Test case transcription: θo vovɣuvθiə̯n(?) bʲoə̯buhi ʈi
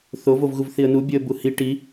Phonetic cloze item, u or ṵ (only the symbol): u